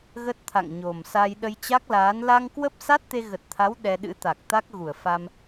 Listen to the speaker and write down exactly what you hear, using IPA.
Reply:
ɣ ə˦˥ t̚ t̪ʰ a̰˧˨ ŋ ɲ o˨˩ m s a˧ j ɗ ə˧ j t͡ɕ a˦˥ k̚ l aː˨˦ n l a˧ ŋ k w ə˦˥ p̚ s a˦˥ t̚ t̪ e˧ ɣ ə˨˩ t̚ t̪ʰ a˨˦ w ɗ ɛ˧ ɗ ɨ̰˧˥ t̪ a˨˩ k̚ t̪ a˦˥ k̚ ɣ u˧˩ ə̯ f a˧ m

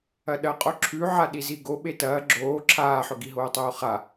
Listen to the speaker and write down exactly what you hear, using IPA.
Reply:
ɐ ɗ ɐ qʼ o ǁʰ ʉ ʕ a ɗ i z i ɡ o ɓ e t ɐː ɡ͡ǁ oː ǁʰ aː ħ ɵ ɡ i ɦ oː tˤ oː χ a

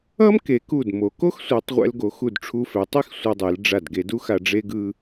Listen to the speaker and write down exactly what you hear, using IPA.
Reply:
ʌ˥ m k e˩˧ k u˧˩ d m o˩˧ k o˥ x sʷ ɛ˩˧ tˤ ʁʷ ɛ̰˧ l ɡ o˩˧ x u˧˩ d ʈ͡ʂʰ u˧ f ɛ˩˧ tˤ i˥ x sʷ ʌ˧ dˤ e˩˧ l ɖ͡ʐ a˧˩ d ɡ e˧ d u˥ x a˧ ɖ͡ʐ e˥ ɡ ɯ˥

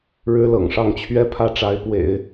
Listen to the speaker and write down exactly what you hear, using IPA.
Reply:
ɻ ɻ̩˥ l ɤ̰˨˩ ŋ ʂ ɑ˥˩ ŋ t͡ɕʰ ɥ ɛ˥ pʰ ä˥˩ ʈ͡ʂ a˧˥ ɪ̯ p w ḛ˨˩˦ ɪ̯

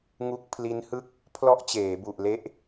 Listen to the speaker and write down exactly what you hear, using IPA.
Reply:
ŋ u˦˥ k̚ pʰ l i˦˥ n h ɯ˥˩ k̚ | pʰ l ɔ˦˥ ʔ t͡ɕ eː˩˦ b u˨˩ ʔ l e˦˥ ʔ

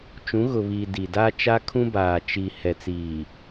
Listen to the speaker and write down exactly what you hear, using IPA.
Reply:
t͡ʃ ũ˨˦ ɣ ʊ˨ β iː˨ d i˨ d a˦ t͡ʃ a˦ kʰ ũ˦ b aː˨ t͡ʃ i˨ h ɛ˨ t͡s iː˨

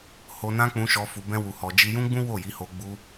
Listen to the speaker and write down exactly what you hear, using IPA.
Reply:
h o˧ n ã˦ k͡p ũ˧ ʃ ɔ˧ f u˧ b ɛ̃˦ w u˧ h ɔ˧ d͡ʒ i˦ j ũ˦ ɡ͡b ũ˦ w o˦˨ j i˨˦ h o˧ ɡ͡b u˧

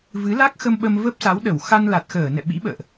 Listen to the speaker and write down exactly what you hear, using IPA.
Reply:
v ɨ˨˦ l a˦˥ k̚ x ə˧ m ɓ ə˧ m v ə˦˥ p̚ s a˨˦ w ɗ ə˧˩ w x a˧ n l a˨˩ t̚ x əː˧˩ n ɛ̰˧˨ ɓ ḭ˧˥ ɓ ə̰ː˧˨ ʔ

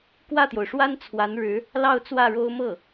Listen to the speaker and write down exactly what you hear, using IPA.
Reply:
k w ä˥˩ t̪ j o˩ ʊ̯ ʂ w a˥ n t͡sʰ w a˧˥ n ɻ ɻ̩˧˥ | l ɑ˥˧ ʊ̯ t͡s w ä˥˩ ɻ o˥ ʊ̯ m ɤ˥˩

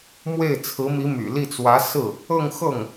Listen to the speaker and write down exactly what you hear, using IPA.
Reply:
m w e˥˩ ɪ̯ t͡sʰ ɹ̩˧˥ m i˧˥ m y̰˨˩ l i˥˩ t͡s w ä˧˥ s ɹ̩˥˩ | ɤ˥˧ ŋ x ɤ˥˩ ŋ

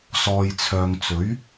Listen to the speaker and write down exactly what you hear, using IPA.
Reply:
s ɔː˨ j t͡sʰ œː˨ ŋ t͡s ɵ˨˥ ɥ

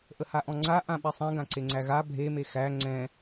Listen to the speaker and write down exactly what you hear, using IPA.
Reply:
ʔ ə h a ʔ ɔ̃ ŋ͡ǀ a ʔ ã ɓ i sˤ ɛ̃ ɡ ã ǀ e ŋ͡ǀ æ ɣ a bʱ e m e x æ ŋ͡ǀ ɛ̃

